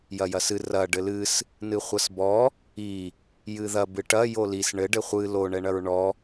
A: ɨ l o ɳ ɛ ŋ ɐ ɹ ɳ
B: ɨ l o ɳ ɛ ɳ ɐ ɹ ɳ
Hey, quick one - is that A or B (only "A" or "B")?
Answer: B